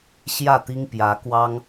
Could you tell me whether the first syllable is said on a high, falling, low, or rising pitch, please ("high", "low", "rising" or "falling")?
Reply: falling